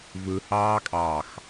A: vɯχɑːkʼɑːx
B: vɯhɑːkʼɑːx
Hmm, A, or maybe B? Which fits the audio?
B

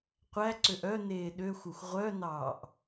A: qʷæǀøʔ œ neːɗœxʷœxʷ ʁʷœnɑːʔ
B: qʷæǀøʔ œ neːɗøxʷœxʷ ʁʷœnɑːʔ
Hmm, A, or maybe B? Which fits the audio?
B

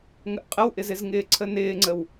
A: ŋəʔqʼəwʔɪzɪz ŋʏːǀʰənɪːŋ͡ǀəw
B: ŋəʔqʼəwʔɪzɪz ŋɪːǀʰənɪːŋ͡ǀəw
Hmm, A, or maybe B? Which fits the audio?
B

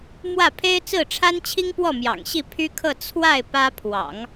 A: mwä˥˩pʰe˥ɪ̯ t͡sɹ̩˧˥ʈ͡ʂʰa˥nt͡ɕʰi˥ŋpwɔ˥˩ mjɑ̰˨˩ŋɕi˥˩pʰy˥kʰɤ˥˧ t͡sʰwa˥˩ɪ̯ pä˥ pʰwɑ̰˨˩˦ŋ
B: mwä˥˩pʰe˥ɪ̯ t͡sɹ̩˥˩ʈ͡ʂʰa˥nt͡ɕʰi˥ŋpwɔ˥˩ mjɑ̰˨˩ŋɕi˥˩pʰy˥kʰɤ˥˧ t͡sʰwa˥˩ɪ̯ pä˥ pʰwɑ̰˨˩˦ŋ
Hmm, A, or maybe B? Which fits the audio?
B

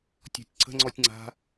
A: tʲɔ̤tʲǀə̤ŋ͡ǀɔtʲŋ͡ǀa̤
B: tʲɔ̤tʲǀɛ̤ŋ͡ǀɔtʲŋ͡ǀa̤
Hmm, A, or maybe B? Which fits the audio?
A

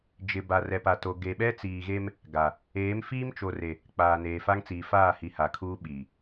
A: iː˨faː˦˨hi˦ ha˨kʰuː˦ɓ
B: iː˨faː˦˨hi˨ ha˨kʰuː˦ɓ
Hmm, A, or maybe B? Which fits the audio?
B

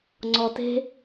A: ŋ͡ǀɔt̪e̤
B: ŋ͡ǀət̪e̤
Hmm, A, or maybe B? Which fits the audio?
A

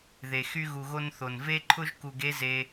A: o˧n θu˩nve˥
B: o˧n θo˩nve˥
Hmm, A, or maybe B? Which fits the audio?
B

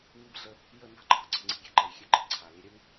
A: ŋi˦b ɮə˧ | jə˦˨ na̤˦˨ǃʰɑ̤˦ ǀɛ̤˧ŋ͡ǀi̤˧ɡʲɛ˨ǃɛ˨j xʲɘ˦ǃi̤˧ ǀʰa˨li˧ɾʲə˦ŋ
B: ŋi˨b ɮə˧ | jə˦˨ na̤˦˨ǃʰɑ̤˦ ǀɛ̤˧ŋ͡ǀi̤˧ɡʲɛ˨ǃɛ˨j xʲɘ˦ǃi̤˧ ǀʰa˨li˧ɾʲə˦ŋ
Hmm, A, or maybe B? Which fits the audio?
A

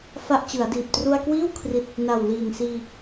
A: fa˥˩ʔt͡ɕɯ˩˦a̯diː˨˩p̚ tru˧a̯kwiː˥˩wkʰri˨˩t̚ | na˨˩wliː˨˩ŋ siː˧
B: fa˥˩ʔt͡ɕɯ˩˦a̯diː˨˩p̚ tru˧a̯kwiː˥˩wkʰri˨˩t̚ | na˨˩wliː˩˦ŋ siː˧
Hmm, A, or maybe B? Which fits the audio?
A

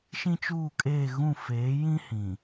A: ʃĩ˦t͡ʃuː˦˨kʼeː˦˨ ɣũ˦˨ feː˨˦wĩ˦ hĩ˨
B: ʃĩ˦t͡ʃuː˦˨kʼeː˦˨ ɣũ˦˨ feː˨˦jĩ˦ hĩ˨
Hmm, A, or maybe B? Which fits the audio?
B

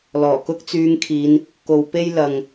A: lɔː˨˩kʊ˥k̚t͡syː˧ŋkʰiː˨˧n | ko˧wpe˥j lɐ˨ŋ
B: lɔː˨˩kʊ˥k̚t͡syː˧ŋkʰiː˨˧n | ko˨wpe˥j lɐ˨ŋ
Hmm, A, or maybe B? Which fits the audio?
B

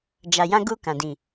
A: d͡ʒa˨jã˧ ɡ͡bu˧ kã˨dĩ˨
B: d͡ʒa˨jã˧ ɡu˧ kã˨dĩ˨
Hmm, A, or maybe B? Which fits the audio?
B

